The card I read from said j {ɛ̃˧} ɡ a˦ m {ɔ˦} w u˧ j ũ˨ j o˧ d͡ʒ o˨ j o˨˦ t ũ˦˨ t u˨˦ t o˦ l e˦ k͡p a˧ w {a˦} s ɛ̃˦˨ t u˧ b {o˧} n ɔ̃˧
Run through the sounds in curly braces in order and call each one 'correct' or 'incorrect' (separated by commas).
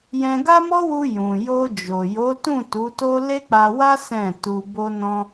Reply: correct, correct, correct, correct